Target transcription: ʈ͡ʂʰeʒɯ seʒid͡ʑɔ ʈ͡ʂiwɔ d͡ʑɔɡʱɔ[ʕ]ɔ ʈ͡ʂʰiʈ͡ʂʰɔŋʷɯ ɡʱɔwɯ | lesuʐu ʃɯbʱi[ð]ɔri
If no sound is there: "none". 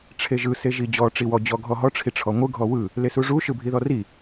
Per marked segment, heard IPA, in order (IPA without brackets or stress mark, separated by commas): ɦ, ð